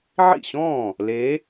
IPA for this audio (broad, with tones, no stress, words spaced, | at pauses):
ʕḭ˥˩ɕɔ̃ː˥˩ | le˧˥